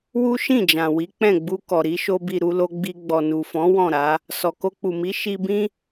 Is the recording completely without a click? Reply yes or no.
yes